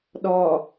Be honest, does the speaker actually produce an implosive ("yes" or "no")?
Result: yes